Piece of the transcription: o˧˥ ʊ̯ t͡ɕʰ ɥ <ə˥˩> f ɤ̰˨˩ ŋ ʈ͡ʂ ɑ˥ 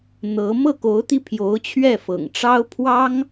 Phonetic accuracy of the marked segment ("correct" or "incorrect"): incorrect